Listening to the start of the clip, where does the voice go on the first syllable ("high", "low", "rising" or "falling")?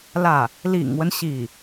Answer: falling